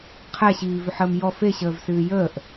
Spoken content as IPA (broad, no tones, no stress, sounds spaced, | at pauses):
qʰ ɛ ɕ iː v ʏ ħ əː m j ɔ f e ɕ əː v s ɨː j əː ʔ